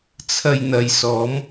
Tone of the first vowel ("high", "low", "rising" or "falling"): low